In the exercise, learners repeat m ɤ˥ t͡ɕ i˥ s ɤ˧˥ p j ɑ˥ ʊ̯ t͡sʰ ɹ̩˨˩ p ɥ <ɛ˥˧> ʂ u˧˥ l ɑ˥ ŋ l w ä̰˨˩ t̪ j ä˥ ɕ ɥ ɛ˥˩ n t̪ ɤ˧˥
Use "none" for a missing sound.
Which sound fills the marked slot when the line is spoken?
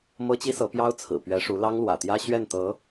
ɛ˧˥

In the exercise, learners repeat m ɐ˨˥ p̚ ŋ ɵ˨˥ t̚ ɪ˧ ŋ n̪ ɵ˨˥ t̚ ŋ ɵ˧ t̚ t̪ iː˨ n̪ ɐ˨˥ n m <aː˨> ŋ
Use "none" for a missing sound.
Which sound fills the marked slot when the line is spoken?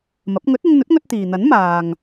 aː˨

